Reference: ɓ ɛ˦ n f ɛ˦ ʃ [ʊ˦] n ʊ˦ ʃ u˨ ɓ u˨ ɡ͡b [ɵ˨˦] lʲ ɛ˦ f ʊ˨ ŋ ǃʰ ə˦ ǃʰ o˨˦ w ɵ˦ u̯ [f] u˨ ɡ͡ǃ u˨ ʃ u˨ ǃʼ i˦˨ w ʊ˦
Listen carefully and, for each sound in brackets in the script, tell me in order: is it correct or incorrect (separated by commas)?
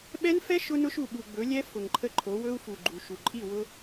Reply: correct, correct, correct